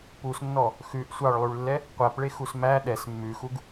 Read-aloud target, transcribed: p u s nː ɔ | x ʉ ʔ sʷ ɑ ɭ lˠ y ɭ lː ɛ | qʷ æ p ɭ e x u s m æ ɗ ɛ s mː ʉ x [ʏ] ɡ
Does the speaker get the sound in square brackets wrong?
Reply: yes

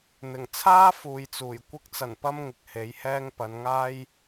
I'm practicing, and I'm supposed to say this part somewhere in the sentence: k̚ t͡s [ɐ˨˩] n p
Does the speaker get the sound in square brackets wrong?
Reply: no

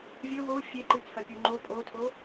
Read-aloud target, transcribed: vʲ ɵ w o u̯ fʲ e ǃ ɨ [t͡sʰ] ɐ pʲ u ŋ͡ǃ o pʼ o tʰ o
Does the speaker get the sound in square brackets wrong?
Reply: no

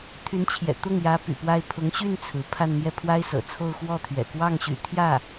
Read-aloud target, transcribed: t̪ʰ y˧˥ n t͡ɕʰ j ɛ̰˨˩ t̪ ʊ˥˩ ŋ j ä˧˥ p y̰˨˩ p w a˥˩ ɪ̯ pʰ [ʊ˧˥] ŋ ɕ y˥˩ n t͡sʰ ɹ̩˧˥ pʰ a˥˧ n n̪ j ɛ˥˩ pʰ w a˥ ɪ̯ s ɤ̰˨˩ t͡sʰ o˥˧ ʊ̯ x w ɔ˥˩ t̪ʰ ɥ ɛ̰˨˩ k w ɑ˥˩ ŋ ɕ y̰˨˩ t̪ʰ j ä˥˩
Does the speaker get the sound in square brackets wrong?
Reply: no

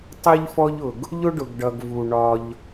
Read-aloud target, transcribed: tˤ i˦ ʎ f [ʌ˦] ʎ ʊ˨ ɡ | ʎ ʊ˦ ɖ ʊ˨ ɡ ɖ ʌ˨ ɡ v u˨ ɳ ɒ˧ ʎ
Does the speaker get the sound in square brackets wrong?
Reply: yes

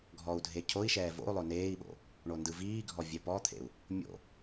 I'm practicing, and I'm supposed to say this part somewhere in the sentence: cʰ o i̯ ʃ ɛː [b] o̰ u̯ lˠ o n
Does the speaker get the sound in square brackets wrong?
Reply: yes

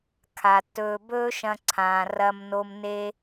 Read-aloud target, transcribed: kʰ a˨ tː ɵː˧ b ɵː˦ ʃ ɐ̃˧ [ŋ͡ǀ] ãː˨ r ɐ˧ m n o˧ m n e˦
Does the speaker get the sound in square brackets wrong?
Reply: yes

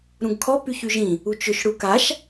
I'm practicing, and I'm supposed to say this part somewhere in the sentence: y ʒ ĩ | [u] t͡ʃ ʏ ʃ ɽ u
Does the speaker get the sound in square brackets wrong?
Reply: no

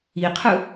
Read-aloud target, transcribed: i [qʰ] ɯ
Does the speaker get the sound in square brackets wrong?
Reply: no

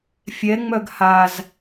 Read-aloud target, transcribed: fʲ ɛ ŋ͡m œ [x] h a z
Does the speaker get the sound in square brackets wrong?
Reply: yes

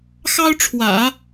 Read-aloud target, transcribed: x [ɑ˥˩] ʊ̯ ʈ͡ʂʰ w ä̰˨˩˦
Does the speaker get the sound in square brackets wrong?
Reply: yes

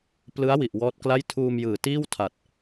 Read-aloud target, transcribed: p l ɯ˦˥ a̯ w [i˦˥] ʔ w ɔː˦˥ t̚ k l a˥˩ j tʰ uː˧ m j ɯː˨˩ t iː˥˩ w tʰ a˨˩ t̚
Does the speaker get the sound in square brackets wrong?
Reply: yes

